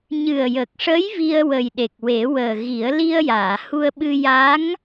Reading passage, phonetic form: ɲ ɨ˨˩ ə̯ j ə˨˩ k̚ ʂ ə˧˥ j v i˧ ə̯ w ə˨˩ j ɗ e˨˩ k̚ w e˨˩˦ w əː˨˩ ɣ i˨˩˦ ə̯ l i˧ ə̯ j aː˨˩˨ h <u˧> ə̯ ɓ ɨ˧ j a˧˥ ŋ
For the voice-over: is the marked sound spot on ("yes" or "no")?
yes